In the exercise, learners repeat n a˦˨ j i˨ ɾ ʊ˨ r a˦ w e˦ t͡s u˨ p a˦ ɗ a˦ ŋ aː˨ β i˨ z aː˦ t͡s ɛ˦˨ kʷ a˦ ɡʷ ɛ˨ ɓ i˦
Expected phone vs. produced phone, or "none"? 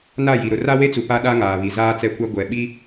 none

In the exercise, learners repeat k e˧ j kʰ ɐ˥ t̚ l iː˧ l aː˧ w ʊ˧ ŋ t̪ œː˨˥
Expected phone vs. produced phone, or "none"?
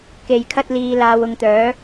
none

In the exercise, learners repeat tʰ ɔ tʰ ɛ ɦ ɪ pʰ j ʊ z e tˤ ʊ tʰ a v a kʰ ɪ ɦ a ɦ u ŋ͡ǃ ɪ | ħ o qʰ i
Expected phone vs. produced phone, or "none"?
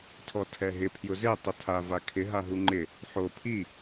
qʰ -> pʰ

